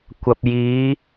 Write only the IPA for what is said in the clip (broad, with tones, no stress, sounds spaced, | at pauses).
kʷ ɐ˨ p̚ j iː˨˧